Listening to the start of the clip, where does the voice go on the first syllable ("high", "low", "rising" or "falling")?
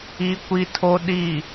high